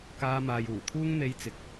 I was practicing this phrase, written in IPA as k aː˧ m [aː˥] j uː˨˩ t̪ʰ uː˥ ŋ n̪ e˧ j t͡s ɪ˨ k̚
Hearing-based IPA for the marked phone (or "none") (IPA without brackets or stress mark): aː˨